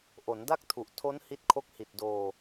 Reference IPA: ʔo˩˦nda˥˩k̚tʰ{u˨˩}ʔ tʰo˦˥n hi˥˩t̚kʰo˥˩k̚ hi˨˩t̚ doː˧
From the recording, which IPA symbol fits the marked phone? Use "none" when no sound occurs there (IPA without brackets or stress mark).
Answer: u˨˩